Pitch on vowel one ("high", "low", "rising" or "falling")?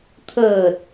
low